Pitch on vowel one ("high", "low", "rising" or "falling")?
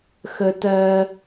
low